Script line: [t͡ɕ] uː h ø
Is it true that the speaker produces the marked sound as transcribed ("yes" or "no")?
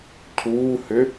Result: no